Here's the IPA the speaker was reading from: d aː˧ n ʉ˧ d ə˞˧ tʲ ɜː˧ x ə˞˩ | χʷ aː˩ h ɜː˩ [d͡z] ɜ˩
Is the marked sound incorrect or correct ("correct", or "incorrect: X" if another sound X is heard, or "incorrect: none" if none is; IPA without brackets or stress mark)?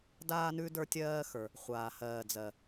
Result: correct